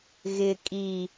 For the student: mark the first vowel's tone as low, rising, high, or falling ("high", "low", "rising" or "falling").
low